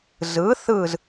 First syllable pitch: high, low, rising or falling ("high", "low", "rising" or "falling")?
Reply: rising